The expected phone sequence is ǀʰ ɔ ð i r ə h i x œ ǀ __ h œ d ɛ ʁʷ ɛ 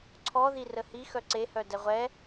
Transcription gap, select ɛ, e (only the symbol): e